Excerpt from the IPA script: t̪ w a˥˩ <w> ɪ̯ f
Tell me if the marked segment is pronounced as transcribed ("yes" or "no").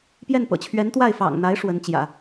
no